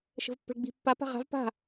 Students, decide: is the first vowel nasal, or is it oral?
oral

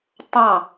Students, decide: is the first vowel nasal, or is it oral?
nasal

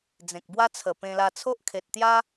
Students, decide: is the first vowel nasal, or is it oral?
nasal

